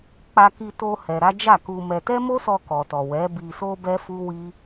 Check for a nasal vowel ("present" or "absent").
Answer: absent